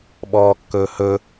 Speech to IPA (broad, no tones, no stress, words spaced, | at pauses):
ɓɔːkːɵːhɵ